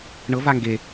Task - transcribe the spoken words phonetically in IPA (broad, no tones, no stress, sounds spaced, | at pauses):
ɳ ɤ v a ŋ ɡ e